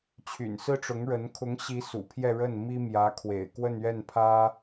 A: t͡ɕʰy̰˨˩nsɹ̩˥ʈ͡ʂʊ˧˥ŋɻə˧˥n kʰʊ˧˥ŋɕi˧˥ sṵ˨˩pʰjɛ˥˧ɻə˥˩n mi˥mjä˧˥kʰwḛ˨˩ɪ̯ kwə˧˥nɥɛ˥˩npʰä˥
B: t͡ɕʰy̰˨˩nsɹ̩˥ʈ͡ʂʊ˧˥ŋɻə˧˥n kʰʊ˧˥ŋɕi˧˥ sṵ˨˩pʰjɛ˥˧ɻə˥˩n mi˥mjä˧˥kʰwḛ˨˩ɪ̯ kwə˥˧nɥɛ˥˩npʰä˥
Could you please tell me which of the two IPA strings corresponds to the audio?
B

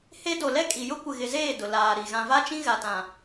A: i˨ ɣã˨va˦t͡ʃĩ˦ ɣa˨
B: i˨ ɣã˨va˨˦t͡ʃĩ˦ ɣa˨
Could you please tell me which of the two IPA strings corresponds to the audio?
A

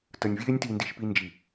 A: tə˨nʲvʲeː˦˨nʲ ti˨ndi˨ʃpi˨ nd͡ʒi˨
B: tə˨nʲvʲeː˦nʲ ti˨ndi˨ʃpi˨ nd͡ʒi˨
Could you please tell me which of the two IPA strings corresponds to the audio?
B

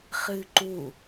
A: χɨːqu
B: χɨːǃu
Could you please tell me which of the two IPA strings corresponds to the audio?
B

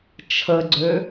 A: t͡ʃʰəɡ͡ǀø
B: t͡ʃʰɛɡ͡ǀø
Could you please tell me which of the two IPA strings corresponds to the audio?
A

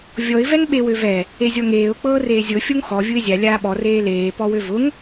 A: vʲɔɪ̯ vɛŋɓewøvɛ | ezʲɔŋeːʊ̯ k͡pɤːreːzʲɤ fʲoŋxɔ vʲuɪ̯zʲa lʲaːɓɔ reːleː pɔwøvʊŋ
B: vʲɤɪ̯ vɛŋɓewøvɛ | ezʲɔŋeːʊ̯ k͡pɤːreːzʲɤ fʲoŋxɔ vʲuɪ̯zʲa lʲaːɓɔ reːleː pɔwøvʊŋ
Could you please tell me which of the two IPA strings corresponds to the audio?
A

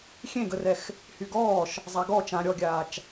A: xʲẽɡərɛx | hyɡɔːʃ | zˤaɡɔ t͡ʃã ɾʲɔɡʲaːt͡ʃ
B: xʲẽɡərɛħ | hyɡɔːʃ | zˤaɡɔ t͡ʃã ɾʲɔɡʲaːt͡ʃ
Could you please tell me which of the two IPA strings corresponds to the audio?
A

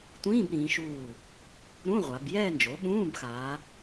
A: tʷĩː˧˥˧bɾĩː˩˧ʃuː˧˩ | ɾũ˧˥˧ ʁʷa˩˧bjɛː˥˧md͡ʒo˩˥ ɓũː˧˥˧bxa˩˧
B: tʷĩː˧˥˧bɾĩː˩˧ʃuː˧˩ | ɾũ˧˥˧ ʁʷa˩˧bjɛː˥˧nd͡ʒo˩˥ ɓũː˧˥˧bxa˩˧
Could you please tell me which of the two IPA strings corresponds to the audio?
B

